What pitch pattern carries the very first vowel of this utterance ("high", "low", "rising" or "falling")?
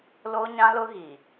high